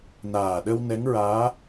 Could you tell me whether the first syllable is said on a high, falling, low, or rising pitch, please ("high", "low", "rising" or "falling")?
low